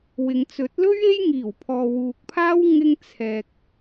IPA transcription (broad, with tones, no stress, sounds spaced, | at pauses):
w ɪ˨ ŋ t͡s ɵ˨˥ t̚ l ɵ˥ ɥ e˥ j ŋ iː˨˩ w pʰ ɔː˨ w uː˨ k̚ pʰ aː˥ w ŋ ɪ˧ ŋ t͡sʰ ɛː˨ k̚